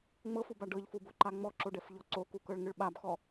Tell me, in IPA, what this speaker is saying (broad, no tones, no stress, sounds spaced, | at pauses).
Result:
ŋ͡m ɤ f u b a ɖ ɤ ʎ f u b o ǃ a ŋ͡m ɔ ǁ o ɖ ɛ f ʎ ɔ ǀ o k u k ɤ ɭ ŋ ɯ ɭ ɓ a b x ɔ